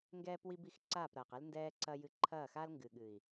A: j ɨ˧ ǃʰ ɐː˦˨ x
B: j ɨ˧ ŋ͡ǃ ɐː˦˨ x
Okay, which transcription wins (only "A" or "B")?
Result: A